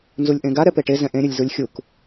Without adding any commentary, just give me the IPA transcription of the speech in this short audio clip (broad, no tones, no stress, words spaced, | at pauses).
nzulʲʔẽɡa ɾɛpeʈe zɛ̃ʔẽ ɾʲɵlʲzulʲxʲuk